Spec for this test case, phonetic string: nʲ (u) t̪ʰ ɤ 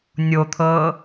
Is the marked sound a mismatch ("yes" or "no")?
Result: yes